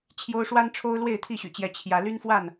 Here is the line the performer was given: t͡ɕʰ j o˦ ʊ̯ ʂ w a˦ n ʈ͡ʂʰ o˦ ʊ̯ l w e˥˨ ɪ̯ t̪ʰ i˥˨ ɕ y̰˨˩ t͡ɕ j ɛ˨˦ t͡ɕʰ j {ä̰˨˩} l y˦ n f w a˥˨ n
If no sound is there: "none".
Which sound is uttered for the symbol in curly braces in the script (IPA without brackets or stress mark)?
ä˨˦